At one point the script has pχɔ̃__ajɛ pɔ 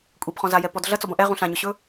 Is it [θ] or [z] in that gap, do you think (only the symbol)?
z